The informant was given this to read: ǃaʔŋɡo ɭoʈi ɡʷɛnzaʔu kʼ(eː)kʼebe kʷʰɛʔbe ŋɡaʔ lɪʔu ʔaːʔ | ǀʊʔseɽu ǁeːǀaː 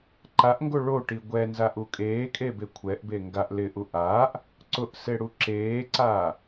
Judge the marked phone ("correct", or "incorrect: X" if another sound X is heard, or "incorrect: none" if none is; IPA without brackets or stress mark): correct